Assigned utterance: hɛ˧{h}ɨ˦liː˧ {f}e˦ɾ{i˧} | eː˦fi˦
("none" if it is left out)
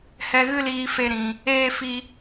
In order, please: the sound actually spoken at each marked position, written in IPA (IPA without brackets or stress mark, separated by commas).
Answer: ɣ, f, ĩ˧